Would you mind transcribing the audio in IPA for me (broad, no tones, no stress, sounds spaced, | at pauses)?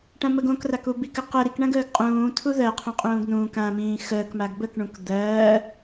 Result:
ʈ ã m ə ɡ õ k r a k u b i k ə q ə ɾ i k ɳ ã ɡ əː ɡ qʼ ũː tʰ u ð ɜ qʰ ũ qʼ ũː ɡ n ũː k ã m ĩː x əː k m a ɡ b ə k ɳ ũ k d̪ ɜː